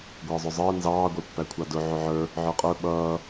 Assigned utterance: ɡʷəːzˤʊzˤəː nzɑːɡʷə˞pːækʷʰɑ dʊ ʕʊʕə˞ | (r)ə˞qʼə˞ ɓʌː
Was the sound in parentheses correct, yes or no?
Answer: no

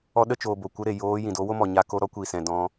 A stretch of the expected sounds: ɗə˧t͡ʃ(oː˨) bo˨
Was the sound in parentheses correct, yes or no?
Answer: yes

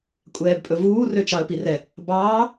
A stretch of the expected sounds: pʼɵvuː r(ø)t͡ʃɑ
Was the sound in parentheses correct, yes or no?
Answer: yes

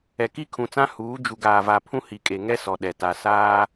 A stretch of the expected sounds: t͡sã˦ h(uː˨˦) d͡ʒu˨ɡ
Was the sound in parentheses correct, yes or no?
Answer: yes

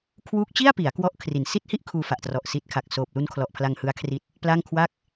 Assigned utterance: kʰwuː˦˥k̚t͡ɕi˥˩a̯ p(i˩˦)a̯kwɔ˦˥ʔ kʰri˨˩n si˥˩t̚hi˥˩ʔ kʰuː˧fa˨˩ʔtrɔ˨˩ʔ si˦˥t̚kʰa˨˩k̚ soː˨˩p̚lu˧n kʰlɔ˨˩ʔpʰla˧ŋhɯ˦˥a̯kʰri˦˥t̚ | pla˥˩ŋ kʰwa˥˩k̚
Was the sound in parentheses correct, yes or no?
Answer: yes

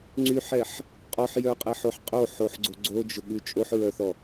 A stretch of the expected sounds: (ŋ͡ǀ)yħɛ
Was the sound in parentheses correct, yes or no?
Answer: yes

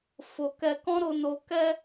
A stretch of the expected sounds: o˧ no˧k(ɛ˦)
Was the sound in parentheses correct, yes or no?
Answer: yes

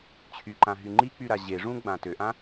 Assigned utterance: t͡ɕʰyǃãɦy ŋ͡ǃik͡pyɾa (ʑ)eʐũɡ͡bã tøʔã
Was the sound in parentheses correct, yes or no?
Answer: yes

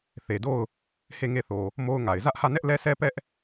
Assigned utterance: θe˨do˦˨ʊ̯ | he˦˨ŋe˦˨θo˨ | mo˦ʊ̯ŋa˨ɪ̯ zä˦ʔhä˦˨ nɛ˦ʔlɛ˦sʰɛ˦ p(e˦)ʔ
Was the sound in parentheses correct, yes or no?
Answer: no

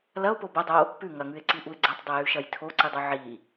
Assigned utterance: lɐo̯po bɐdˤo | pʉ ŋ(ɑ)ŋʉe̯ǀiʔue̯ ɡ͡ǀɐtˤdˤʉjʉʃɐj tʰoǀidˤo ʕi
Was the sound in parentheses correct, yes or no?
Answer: no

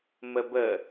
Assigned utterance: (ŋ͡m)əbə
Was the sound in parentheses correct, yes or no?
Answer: no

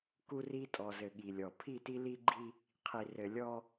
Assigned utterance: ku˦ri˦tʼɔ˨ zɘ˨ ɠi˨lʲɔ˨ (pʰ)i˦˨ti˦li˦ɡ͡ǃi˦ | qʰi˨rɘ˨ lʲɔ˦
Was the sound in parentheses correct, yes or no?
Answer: yes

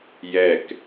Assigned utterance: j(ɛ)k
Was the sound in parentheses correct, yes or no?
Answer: yes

